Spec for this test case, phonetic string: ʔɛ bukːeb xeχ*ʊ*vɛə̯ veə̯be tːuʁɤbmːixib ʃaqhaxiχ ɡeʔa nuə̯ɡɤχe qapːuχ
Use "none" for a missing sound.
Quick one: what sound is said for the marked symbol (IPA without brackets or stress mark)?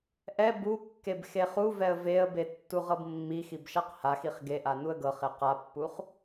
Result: u